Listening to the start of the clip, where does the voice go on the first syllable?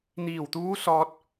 low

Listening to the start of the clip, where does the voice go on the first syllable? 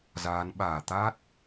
rising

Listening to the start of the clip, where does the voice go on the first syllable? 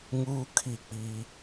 high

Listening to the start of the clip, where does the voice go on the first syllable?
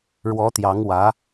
rising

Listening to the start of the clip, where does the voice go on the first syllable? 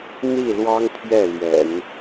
falling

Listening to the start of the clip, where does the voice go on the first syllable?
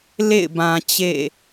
falling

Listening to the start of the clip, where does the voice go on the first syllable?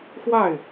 falling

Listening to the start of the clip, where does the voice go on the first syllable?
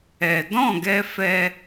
low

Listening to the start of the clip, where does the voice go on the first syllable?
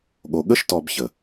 low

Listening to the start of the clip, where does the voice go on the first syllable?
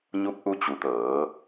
rising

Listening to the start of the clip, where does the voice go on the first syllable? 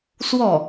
falling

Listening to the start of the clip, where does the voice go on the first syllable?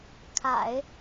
low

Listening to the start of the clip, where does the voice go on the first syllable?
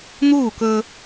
falling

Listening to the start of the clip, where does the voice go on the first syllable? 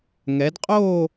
rising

